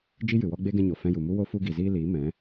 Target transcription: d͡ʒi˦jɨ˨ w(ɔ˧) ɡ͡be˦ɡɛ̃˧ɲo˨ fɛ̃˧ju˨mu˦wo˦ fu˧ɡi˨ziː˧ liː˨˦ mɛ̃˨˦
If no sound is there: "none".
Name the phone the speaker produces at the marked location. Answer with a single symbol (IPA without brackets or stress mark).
ɔ˧